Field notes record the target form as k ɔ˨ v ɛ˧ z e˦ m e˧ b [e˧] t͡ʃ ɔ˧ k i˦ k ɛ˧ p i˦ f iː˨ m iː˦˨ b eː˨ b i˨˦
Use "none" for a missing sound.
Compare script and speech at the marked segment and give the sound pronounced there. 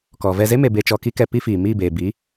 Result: e˧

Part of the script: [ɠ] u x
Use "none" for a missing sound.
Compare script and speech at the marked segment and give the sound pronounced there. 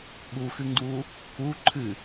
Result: ɠ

